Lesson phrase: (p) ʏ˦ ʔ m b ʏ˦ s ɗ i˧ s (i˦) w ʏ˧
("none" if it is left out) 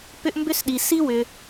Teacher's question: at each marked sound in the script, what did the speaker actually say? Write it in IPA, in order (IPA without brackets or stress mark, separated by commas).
p, i˦